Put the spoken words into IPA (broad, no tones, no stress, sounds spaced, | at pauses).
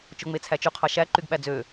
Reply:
t͡ʃ o ŋ͡m e t͡sʰ æ t͡ʃ y qʰ ɑ ʃ æ ǃ y ɡ ɓ æ d͡z ø